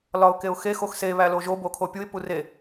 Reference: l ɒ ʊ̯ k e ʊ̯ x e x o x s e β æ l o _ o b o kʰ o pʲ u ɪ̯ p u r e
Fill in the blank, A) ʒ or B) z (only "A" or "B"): A